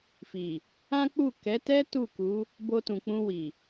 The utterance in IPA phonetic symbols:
fi˨ | ã˦k͡pu˦˨ kɛ˨˦tɛ˦ tu˦˨ku˨˦ | bo˧tũ˨k͡pũ˧ wi˨

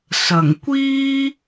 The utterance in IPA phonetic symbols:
sɐ˨˩ŋkʷiː˥

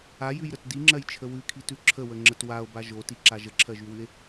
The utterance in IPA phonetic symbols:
ajʉjɾət diŋ͡ǁɜjt͡ʃʰə wʉkʰitʉ ǁʰəwəŋ͡ǁət wao̯ba ʒotiǁa ʒəǁʰɜʒʉwʉe̯

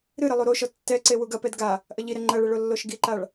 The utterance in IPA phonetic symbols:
ɾɨɾɘ lˠuɾoʃɔ tːɛǀe wuɡɐpɛd ɡa | ʔɐʎiɾɛ ŋ͡ǃɐɭɘ ɭolːoʃɡiǃaɭ

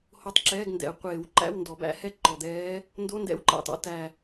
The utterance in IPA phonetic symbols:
ho˧˥tˤǁɛː˧˥˧ɡndɛ̰˨˩˦ə̯ qʷeː˨˩˦w ǃæ̰˧˥˧wndɔ˨˩˦bæ̰˧˥hɛ˥˨ ǃɔ˨˩d̪ɛː˧˥ | ndo˧˥˧ndɛ̰˧˥wǃæ̰˨˩tˤɔ̰˧˥ tæ˨˩

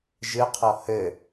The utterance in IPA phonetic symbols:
ʒɨqʰɔ hɘ

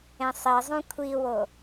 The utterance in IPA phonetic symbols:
ẽsˤezˤũ kʷʰiwo

